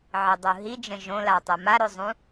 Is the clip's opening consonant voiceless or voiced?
voiced